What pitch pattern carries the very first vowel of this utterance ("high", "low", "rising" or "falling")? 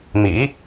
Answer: rising